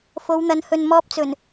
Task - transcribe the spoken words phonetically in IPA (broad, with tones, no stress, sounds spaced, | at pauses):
f o˨˧ w n̪ ɐ˨˥ n h ɵ˨ n m ɔː˧ p̚ t͡s ɵ˨˩ n